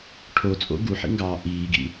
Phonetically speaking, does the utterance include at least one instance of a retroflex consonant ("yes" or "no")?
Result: yes